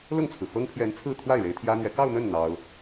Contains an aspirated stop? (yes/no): yes